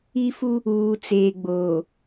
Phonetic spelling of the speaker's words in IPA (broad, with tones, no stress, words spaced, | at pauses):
i˦fu˦ | uː˨t͡seː˨ɡ͡boː˨